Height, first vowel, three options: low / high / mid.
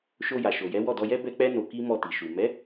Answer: mid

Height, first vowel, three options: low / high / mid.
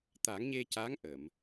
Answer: low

